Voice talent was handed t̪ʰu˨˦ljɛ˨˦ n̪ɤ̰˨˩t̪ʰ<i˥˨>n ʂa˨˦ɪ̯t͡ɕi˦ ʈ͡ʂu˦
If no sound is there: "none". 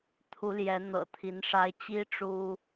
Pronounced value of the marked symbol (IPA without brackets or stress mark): i˨˦